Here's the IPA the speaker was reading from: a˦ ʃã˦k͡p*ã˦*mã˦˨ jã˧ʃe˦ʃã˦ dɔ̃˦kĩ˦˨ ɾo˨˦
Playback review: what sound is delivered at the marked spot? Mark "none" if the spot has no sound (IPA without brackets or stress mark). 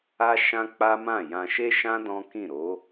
a˦